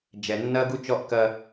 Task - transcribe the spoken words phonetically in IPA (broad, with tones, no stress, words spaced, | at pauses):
d͡ʒɛ˨nːɐ˦ɡu˦t͡ʃɔ˦ʔ kɐ˦